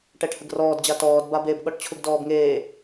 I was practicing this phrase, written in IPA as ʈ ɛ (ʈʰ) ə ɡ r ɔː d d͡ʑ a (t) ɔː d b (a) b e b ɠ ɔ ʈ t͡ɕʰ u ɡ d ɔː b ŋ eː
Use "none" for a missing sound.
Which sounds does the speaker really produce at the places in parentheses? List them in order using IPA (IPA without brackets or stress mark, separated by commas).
ʈʰ, t, a